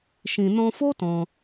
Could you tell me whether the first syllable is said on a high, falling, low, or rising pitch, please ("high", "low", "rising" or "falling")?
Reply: low